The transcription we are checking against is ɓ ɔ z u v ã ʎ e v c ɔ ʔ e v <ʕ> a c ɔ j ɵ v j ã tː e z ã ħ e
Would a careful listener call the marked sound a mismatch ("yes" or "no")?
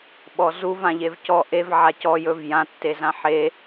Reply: no